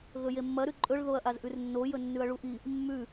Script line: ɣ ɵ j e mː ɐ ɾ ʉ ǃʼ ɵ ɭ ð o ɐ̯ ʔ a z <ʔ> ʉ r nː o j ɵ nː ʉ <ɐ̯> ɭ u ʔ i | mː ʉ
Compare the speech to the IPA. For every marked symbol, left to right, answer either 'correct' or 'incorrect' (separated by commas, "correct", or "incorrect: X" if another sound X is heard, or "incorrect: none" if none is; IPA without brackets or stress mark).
correct, correct